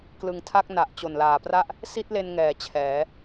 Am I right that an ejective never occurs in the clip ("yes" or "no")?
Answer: yes